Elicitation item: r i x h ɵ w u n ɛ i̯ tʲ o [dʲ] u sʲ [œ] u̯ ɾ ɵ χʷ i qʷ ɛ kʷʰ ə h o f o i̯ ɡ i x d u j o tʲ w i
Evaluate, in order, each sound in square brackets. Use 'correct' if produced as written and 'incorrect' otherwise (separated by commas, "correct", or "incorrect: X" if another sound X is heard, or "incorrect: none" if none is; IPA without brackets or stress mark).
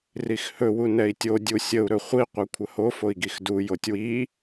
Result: correct, incorrect: ə